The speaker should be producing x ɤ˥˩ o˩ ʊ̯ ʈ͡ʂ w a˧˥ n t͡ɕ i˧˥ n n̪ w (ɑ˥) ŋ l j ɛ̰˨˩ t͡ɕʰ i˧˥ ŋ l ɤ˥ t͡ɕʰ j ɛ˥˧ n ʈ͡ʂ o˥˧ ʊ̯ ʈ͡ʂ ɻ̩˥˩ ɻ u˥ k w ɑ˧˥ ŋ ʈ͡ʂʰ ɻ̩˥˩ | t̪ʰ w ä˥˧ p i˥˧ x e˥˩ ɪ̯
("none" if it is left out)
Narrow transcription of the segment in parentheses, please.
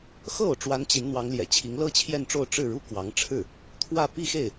ɑ˧˥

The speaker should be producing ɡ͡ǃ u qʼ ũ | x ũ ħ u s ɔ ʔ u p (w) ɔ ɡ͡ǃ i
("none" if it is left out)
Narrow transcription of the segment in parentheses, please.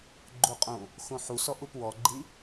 w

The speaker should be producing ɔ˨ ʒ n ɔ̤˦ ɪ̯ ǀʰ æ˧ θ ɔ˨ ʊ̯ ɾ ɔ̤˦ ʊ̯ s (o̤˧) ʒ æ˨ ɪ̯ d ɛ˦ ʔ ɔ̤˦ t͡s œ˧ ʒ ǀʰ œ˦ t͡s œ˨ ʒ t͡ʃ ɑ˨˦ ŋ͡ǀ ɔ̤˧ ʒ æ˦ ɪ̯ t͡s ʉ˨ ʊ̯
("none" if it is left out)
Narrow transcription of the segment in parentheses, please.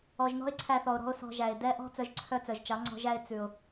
ɔ̤˧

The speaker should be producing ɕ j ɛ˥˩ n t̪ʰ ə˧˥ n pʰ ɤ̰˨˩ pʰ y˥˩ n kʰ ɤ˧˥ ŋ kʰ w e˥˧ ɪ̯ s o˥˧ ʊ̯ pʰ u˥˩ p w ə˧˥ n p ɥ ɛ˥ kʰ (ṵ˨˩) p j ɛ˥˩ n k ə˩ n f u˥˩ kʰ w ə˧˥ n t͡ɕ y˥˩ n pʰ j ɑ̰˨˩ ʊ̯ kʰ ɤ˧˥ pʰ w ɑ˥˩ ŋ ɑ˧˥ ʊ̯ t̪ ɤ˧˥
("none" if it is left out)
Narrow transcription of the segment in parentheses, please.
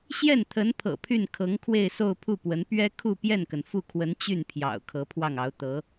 u˥˧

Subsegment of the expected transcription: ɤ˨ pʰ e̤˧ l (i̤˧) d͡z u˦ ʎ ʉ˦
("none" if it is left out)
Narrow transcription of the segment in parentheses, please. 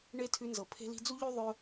i̤˧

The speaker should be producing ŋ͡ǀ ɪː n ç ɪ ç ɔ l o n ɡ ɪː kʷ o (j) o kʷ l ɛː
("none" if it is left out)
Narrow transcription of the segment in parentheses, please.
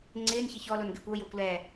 j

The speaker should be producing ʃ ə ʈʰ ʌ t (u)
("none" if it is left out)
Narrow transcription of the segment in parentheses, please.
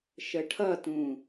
ũ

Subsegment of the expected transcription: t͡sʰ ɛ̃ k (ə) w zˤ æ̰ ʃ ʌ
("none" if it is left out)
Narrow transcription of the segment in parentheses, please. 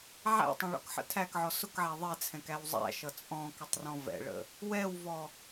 æ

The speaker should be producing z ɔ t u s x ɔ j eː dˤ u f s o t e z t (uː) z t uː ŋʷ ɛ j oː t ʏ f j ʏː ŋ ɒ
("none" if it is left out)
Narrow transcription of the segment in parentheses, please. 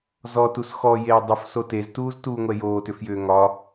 uː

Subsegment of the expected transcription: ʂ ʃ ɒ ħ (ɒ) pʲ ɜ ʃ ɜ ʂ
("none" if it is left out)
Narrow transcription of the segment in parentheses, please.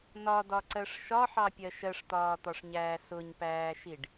ɑ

